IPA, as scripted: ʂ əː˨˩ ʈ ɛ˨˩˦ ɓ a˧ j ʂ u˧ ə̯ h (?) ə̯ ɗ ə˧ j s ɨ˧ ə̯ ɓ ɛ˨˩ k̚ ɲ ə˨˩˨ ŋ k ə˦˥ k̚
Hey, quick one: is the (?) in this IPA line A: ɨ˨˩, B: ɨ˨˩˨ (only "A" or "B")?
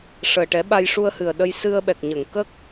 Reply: A